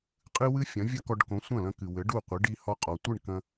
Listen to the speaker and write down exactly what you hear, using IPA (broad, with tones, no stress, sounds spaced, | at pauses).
qʼ ɨ˥ w ɨ˥ fʲ ɐ̃˩˥ vʲ ɐ˥ k ɔ˧ ɖ k õ˩˥ sʷ ɐ̃˥˩ l ɐ̃˧ k ɨ˩ w ɘ˩˥ ɖ u˥˩ qʷ ɨ˩˥ ɖ i˧ h ɔ˧ qʼ ɔ˩ tʷ ɨ˥˩ ɳ k ɐ̃˧